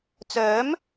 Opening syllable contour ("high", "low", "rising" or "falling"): rising